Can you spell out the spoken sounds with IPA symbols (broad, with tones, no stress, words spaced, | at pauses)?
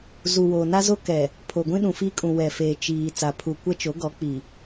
zu˨wo˨ na˦zo˦ kɛ˨ | pʰo˨ ɡʷĩ˦ɗũ˨fiː˦kʼũ˨ wɛ˨feː˨ t͡ʃiː˨ t͡sa˨pʰu˨ kʷɛ˦t͡ʃo˨˦ɡɔ˨˦ k͡pi˨